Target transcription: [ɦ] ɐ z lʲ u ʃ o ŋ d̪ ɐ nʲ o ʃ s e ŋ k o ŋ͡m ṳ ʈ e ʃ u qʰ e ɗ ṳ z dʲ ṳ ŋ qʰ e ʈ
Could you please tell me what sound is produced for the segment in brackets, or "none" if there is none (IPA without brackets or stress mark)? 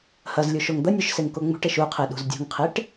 h